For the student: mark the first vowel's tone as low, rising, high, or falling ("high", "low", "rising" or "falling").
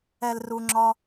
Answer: low